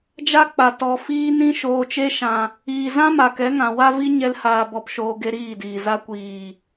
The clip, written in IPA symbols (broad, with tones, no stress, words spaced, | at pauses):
d͡ʒa˦k͡pa˨ tɔ˨ fiː˧nĩ˧ ʃoː˨t͡ʃe˧ʃã˨ | iː˨zã˦ ma˨kɛ˨˦ŋã˨ wa˦vi˦ ɲɛ˦lhaː˧bɔ˧pʃoː˧ ɡe˦ɾiː˦˨diː˨za˦ kʷiː˨